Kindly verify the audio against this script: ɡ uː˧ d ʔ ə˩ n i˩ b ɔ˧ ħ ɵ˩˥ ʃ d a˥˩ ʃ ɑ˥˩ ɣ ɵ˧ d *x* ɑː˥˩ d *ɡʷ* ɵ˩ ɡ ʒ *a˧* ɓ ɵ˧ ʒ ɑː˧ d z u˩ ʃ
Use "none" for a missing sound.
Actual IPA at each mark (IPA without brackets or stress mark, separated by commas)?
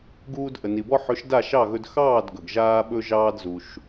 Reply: x, ɡ, aː˧